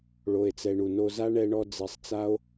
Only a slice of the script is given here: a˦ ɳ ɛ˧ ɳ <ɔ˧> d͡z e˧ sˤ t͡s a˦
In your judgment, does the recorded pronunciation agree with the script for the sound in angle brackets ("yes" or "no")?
yes